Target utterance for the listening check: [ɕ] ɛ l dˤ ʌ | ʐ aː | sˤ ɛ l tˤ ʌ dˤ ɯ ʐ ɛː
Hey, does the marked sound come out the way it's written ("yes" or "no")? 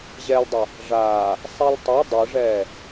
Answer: no